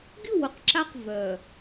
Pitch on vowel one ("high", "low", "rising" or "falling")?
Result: falling